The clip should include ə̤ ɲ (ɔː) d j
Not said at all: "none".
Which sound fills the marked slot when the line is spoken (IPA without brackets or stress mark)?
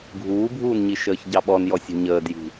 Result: əː